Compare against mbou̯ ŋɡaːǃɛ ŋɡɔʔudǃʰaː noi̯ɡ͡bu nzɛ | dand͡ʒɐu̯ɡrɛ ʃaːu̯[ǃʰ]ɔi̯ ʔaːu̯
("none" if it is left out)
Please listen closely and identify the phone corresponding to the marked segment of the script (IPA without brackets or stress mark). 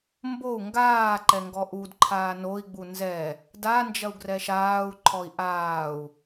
ǃʰ